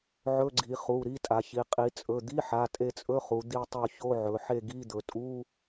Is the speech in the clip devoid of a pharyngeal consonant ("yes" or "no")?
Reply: no